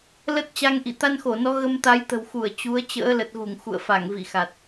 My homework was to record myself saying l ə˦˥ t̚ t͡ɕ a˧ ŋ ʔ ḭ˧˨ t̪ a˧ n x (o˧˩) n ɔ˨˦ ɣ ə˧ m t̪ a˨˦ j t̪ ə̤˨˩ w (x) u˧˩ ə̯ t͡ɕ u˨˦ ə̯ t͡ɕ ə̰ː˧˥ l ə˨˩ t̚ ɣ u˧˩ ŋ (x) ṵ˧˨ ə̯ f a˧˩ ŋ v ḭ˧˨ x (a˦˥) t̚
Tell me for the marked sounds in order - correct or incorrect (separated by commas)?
correct, correct, correct, incorrect